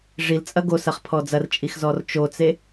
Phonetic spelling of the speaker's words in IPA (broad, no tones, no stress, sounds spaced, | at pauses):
ʐ i l t͡sʼ ɐ ɡ o s ɐ χ pʰ ɔ d͡z ɐ r t͡ʃʼ i x z ɔ r t͡ʃ o t͡s e